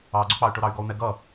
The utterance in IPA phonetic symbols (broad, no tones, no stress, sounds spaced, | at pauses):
ɑ ɡ͡ǀ ʊ k͡p ɑ y̯ ʈ ʊ ɾ ɑ y̯ ɡ ɔ u̯ n̪ ɛ ɡ ʌ